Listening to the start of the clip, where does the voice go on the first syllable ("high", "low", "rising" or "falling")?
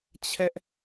high